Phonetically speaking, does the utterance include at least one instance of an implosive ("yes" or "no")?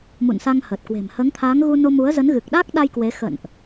yes